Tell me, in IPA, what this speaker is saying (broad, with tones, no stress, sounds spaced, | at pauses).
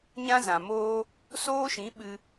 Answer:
ɲ ã˦ z ã˨ m oː˦ | s oː˦ ʃ ĩ˨˦ ɓ ɨ˧